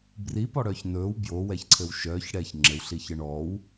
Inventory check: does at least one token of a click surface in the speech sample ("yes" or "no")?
yes